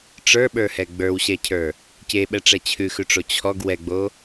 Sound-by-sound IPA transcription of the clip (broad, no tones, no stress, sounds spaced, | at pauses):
ʈ͡ʂ ə˞ ɓ ə˞ h ɛ ɡ͡b ə˞ w ɕ ɛ cʰ ə˞ | c e ɓ ɛ ʈ͡ʂ ɛ t͡ɕʰ ʉ x ʉ ʈ͡ʂ o t͡ɕʰ ɔ ɡ w ɛ ɡ͡b o